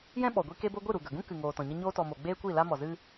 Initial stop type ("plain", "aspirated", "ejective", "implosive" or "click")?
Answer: implosive